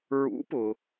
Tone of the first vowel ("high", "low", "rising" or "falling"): rising